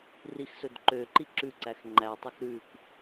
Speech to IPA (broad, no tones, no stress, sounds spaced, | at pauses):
r i x s ɵ d ǃ ø ǃ i ǁ ʉ ǀ æ x ŋ͡ǃ æ tˤ ɵ x ɾ ʉ k